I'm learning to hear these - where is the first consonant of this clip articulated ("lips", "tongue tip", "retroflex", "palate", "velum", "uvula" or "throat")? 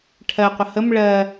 retroflex